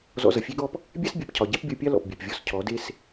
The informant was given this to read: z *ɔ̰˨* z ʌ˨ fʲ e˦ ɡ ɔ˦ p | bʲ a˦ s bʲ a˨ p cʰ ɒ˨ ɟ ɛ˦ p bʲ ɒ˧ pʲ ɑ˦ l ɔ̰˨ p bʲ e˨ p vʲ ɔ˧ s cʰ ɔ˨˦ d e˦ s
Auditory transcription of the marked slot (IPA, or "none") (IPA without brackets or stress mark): ɔ̰˧